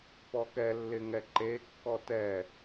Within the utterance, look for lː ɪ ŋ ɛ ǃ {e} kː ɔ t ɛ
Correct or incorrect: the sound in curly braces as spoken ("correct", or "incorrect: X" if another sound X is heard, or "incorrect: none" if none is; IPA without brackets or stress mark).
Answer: correct